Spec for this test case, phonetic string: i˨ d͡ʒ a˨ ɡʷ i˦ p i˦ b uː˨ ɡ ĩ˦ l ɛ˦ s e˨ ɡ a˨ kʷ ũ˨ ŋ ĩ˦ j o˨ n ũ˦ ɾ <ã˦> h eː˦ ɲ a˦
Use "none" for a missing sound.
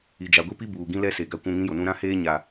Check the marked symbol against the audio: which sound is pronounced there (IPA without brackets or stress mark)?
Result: ã˦